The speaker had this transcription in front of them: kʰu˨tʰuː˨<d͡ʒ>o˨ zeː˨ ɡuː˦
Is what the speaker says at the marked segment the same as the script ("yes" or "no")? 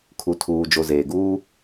yes